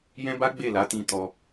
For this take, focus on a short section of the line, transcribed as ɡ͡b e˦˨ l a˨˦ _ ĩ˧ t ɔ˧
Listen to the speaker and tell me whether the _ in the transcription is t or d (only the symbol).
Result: t